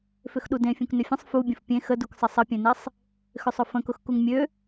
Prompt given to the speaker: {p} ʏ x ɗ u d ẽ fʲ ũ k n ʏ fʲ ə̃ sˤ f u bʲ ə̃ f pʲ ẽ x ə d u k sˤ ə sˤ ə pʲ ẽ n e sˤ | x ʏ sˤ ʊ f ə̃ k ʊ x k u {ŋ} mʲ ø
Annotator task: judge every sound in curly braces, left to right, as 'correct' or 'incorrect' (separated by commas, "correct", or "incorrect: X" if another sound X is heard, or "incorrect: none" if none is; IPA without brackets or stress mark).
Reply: incorrect: f, correct